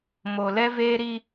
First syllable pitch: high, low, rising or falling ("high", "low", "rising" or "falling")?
low